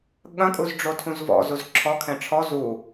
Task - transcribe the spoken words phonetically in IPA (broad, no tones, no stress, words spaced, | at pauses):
ɠɐ̃kʼuz ɖ͡ʐotʰũzvɔ̰zuz ǁʰɔkʰɛ̃ ʈ͡ʂʰɔ zu